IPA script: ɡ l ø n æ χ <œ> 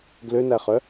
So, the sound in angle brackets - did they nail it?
yes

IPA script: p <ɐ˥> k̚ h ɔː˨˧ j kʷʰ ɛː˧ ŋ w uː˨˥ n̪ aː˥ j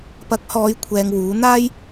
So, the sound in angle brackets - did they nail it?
no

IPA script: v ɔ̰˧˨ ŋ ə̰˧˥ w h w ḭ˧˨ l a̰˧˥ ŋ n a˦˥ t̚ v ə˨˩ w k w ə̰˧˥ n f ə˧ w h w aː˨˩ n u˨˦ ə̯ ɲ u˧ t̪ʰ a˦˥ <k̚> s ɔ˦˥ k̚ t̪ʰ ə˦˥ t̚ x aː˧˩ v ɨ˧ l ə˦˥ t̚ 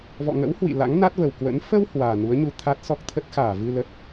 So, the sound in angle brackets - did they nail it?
no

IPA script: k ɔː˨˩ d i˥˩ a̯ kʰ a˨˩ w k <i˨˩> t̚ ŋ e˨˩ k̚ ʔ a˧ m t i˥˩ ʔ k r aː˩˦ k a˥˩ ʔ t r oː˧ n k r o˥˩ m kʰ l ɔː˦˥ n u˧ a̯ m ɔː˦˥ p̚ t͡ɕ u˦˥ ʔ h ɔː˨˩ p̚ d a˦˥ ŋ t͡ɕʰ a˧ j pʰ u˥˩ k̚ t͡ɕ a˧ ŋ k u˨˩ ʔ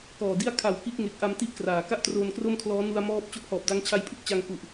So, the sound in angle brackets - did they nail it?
no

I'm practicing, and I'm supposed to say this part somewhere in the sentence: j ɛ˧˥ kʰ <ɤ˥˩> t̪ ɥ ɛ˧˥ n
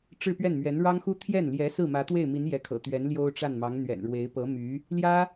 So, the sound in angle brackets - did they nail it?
no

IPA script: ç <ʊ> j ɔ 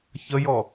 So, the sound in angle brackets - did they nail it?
no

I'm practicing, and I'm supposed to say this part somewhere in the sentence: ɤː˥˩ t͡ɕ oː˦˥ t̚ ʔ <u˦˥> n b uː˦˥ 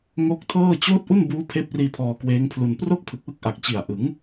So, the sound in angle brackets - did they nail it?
no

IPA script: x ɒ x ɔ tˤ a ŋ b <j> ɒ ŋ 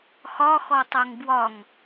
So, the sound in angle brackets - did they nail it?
no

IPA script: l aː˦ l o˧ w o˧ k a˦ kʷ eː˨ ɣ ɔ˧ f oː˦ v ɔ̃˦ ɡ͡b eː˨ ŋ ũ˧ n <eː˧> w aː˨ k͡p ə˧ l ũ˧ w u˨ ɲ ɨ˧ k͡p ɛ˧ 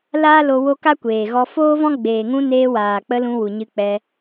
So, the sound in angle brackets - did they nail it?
yes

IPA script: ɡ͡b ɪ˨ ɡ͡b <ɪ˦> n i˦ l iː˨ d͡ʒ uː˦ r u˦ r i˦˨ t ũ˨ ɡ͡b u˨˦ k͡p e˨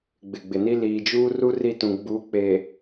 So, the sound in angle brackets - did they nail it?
no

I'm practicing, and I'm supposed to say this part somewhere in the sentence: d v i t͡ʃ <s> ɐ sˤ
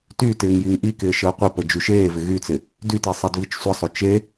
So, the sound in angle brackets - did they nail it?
no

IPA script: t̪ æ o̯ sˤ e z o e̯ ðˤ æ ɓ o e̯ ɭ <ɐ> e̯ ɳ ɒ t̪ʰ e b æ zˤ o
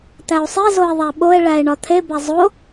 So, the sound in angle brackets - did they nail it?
no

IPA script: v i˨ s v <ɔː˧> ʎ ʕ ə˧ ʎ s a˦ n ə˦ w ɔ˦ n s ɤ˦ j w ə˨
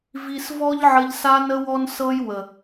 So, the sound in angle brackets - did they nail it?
no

